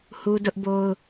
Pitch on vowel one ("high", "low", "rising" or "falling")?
high